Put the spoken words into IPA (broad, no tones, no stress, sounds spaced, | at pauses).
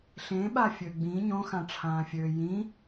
ɬ ẽ ɓ a fʲ ø ɡ͡b ĩ ɲ õ x ã ʈ͡ʂʰ ãː fʲ øː j ĩ